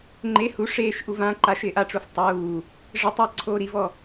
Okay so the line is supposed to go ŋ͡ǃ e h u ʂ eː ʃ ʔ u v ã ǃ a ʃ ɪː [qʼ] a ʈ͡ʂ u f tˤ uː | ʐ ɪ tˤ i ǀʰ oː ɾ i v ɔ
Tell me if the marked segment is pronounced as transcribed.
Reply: no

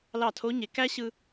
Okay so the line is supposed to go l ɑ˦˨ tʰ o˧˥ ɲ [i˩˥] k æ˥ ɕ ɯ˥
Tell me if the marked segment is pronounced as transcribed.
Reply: no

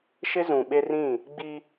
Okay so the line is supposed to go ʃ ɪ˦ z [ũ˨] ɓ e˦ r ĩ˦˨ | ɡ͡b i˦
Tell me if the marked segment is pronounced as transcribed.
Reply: yes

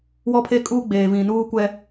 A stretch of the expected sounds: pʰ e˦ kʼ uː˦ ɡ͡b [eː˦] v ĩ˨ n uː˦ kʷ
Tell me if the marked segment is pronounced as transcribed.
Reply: no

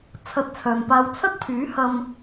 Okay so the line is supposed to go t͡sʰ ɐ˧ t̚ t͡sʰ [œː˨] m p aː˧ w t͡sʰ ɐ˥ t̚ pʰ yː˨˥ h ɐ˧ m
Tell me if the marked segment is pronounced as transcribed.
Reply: yes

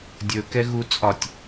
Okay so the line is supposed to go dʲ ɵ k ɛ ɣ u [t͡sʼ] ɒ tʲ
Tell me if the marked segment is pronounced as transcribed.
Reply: yes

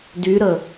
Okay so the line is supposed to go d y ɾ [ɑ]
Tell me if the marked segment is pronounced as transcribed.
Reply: no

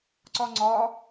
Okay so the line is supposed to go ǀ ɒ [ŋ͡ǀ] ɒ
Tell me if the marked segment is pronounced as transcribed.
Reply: yes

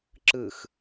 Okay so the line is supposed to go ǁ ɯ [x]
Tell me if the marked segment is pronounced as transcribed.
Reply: yes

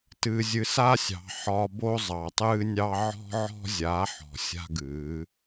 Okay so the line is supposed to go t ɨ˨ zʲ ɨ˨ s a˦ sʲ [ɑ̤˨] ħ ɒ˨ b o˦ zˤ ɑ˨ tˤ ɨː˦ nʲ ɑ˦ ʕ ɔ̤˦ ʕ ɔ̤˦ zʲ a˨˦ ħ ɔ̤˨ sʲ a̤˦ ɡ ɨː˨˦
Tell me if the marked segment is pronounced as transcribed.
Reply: yes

